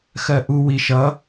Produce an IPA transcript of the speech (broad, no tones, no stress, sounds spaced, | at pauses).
x ɜ ʔ u w i ʃ ʌ